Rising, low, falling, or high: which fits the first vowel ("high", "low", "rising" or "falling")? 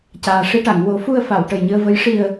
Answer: low